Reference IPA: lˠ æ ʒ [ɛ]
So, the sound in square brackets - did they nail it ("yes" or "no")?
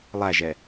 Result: yes